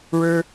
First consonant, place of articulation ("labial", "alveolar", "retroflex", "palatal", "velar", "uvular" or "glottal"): retroflex